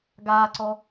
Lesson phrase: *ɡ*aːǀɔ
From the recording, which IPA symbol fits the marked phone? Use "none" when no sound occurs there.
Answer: ɡ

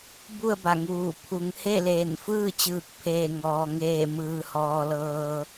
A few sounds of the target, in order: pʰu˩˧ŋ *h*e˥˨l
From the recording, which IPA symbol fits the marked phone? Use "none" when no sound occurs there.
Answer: h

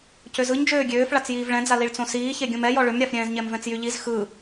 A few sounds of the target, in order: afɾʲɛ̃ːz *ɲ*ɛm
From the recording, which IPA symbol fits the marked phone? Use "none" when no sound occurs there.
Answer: ɲ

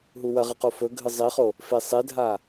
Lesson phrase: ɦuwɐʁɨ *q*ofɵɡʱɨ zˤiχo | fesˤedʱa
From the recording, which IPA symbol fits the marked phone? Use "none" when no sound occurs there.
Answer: q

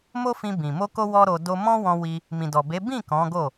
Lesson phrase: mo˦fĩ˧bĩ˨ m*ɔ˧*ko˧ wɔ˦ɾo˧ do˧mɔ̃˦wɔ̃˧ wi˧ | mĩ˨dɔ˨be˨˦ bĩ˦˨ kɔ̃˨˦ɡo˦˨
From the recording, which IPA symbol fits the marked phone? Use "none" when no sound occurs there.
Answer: o˧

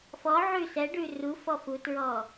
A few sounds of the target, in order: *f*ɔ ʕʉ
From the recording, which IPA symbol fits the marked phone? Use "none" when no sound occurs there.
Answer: f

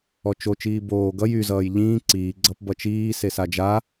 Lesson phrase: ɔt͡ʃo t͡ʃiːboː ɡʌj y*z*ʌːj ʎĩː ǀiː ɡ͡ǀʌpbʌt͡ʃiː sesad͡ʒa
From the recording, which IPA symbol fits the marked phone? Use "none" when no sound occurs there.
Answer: z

